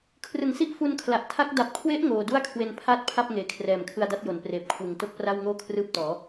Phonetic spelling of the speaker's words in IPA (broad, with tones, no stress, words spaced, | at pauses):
kʰrɯ˨˩ŋsi˦˥ʔ fu˧nkʰla˨˩ʔ tʰa˦˥k̚ da˨˩p̚kʰwe˦˥ʔ ŋoː˧ du˥˩a̯kʰwe˧n pʰaː˥˩t̚pʰa˥˩p̚ ŋeː˨˩kʰrɛː˨˩mkʰɯ˧a̯ da˦˥t̚jo˩˦npreː˨˩p̚kʰwɯ˨˩ŋ to˥˩k̚pra˥˩wŋoː˥˩ kʰrɯː˦˥p̚tɔː˩˦